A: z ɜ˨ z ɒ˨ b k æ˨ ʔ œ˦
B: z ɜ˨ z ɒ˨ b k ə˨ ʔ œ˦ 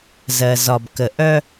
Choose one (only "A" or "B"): B